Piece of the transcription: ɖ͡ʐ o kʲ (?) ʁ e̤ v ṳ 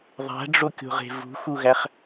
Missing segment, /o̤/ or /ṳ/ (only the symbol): o̤